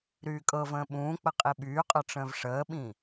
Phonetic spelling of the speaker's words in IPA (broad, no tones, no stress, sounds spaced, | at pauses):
ɾ yː kʼ ɤ v ə̃ː ɓ ũː k͡p ə qʼ i ɓ yː qʼ ɤ ʈ͡ʂ ə̃ː v ʂ əː ɓ ĩ